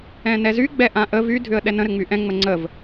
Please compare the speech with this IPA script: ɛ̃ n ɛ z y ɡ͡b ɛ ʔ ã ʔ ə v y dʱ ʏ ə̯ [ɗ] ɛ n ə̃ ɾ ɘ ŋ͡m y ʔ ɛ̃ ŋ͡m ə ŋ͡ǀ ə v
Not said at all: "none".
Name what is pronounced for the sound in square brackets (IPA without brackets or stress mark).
ɗ